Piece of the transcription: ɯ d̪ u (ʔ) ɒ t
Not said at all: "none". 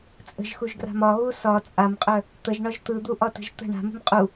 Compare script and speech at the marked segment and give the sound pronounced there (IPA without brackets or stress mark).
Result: ʔ